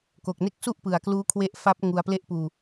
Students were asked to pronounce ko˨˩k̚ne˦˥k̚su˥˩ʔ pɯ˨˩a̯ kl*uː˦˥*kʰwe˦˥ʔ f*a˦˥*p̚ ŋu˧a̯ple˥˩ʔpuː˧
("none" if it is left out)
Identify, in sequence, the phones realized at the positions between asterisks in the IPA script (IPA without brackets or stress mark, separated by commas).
uː˦˥, a˦˥